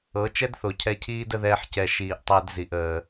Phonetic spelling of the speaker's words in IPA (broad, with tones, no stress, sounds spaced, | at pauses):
ɤ˨˦ t͡ʃ ɛ˦ d θ o˨ cʰ ɛ˧ cʰ iː˦ d ə˦ ð ɛː˦ ħ c ɛ˧ ʃ iː˨ ʔ tˤ əː˧ d z i˨ ʔ əː˧